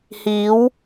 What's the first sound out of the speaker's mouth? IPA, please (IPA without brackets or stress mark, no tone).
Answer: h